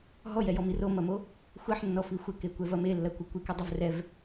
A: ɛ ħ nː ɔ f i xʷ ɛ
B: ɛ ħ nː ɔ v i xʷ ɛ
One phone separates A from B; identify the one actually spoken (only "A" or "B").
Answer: A